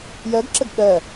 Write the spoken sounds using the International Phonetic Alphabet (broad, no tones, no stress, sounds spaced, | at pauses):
j ɜ ɡ ǁ ə ɡ ɠ ɜ